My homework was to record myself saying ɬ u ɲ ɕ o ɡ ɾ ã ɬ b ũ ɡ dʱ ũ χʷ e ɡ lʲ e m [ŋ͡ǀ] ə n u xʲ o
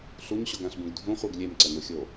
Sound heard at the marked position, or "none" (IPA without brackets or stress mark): ǀ